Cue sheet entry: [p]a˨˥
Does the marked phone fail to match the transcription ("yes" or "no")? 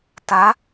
yes